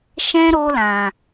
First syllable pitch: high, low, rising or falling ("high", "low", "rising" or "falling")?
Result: high